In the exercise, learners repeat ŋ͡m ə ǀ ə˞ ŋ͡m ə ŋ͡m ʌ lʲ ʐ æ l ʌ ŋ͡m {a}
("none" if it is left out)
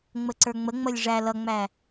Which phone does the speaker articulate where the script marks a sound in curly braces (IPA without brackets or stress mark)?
æ